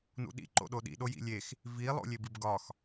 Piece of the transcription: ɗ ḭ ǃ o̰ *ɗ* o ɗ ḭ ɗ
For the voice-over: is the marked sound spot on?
yes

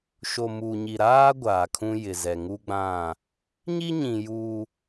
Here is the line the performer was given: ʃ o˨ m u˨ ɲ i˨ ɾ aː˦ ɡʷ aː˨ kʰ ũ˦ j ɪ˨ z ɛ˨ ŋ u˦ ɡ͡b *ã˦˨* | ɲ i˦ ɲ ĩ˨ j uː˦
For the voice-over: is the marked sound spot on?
yes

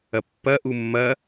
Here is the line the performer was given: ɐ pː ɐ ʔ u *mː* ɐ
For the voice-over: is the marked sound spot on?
yes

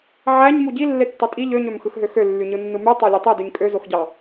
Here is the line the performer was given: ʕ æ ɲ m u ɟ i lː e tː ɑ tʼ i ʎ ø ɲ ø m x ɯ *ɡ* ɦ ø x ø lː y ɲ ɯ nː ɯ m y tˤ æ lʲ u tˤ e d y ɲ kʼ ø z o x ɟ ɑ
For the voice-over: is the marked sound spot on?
no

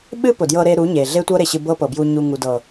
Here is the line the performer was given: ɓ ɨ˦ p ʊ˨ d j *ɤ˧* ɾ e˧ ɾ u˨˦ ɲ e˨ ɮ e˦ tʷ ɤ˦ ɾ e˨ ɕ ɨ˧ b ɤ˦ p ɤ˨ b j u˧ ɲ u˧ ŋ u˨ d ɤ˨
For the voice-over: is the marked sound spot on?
yes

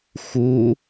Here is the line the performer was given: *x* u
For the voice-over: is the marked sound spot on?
yes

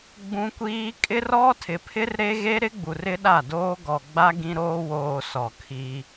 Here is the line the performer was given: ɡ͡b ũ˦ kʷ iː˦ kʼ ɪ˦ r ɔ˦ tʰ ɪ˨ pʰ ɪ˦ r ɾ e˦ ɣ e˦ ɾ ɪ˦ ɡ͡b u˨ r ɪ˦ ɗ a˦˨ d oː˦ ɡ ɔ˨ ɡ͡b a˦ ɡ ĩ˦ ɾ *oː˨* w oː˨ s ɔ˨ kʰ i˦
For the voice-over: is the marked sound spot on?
no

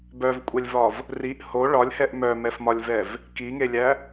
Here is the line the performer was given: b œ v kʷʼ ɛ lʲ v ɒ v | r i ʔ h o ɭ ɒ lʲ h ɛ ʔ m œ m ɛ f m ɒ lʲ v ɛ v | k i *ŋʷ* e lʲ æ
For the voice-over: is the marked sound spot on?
no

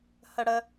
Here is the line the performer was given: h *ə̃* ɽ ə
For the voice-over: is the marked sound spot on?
no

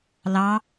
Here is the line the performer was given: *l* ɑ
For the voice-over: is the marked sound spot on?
yes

